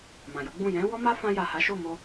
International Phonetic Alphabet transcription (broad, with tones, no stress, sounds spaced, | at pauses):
m ã˨ j o˨˦ ɡ͡b ũ˦˨ j ɛ̃˨˦ w ɔ˦ m a˦ f ã˧ j a˨ h a˨˦ ʃ o˦˨ m o˧